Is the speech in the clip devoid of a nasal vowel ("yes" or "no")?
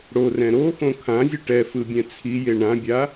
no